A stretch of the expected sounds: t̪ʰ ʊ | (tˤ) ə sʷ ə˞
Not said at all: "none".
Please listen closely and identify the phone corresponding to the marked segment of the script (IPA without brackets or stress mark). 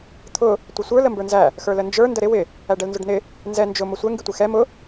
tʷ